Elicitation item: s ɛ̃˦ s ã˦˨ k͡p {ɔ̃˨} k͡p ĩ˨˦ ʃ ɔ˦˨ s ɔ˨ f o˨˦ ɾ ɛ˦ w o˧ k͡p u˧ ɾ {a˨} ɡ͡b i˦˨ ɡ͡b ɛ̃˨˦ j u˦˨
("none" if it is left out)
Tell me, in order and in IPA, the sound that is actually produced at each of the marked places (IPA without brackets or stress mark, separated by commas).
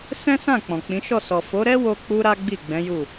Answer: ɔ̃˨, a˦